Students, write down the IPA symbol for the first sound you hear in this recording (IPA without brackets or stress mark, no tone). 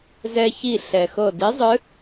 z